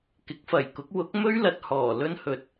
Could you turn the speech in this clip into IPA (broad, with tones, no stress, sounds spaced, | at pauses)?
k ɪ˨˥ k̚ f ɐ˨˩ j k ʊ˨˥ k̚ w ʊ˨˥ k̚ m ɵ˥ ɥ l ɐ˨ t̚ h ɔː˨˩ l ɵ˥ n h ɵ˨ t̚